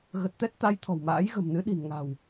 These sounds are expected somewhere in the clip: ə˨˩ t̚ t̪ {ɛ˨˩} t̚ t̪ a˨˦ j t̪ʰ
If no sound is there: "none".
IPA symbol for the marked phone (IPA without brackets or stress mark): ɛ˦˥